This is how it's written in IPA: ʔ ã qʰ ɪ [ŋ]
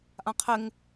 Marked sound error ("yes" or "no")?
no